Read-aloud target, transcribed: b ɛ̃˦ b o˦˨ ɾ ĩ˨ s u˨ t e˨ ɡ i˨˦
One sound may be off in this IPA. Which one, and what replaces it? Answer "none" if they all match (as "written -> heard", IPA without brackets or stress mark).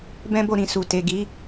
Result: none